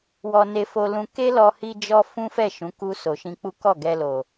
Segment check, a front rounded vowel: absent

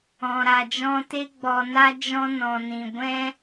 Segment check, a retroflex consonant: absent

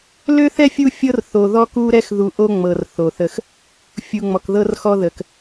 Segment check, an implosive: absent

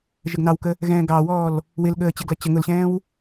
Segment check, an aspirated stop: absent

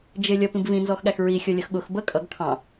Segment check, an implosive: present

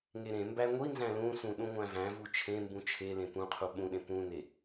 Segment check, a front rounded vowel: absent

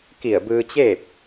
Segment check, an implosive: absent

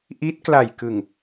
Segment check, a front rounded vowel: absent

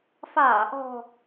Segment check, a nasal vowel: absent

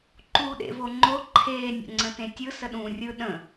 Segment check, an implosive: present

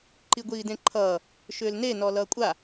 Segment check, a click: present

